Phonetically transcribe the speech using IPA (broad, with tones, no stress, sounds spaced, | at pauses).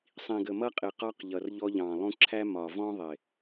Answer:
sˤ ĩ˨ ɡ ə˨ m ʌ˦ qʼ ɪ˨ q ɒ˧ q ʎ ʌ˨ r ʎ ɔ˧ ʎ ɑ̃˨ lˠ ũ˧ ǁʰ æ˦ m ɒ˨ v ɔ̃˦ ðˤ ɪ˨